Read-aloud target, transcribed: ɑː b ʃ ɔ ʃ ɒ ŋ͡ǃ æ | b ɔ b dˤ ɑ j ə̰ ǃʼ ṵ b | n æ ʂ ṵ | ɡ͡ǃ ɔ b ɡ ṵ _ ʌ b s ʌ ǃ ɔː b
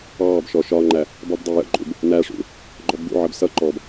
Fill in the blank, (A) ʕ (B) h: A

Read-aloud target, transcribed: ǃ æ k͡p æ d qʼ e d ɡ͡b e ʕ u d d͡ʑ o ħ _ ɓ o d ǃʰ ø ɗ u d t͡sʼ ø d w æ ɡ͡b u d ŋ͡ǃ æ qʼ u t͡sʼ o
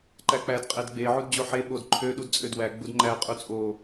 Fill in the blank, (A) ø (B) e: B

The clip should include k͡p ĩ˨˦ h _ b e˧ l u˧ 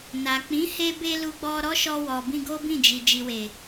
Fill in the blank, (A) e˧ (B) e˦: A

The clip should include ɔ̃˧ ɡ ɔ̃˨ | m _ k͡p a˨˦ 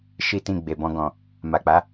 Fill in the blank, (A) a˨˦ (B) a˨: B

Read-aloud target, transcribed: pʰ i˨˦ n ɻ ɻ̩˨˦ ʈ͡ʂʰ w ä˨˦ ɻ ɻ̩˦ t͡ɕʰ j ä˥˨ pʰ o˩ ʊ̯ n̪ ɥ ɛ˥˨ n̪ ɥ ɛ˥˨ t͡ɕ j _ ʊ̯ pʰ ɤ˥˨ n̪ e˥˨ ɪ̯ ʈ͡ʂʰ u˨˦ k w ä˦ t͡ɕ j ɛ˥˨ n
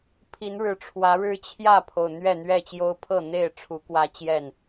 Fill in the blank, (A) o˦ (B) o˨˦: A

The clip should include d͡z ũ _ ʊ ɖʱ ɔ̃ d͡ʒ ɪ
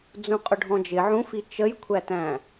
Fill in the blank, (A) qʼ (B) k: A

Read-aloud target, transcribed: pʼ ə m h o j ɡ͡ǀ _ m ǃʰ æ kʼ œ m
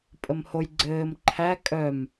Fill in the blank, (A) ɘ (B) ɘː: B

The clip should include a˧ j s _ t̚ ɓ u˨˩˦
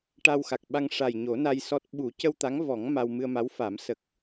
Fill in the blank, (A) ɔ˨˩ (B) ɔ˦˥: B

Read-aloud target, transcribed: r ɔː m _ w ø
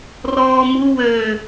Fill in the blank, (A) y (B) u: B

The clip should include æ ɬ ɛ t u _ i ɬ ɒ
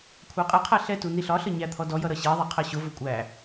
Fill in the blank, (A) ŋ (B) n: B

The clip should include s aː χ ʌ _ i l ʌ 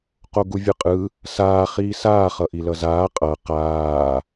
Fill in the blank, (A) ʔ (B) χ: A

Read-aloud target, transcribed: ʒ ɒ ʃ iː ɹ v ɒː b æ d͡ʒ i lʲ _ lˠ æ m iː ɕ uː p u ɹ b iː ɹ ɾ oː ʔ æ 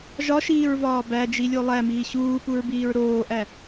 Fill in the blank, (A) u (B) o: B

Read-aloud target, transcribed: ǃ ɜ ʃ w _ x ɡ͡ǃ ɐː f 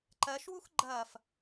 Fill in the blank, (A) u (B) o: A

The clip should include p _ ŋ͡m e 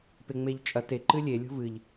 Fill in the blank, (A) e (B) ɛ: A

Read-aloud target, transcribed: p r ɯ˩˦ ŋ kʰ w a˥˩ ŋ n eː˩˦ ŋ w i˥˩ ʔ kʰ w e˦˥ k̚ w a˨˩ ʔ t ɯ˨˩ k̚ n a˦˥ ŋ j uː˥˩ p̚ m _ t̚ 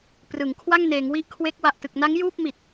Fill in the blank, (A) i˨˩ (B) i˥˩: A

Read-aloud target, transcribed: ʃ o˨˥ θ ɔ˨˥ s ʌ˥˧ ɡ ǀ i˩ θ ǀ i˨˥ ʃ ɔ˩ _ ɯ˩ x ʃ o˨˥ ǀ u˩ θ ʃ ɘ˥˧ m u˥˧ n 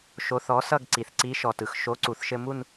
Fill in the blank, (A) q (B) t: B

